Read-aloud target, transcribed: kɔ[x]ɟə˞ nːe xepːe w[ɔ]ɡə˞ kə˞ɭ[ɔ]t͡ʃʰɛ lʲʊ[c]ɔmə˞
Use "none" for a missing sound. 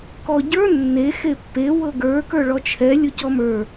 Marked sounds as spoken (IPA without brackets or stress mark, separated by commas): none, ɤ, ɔ, c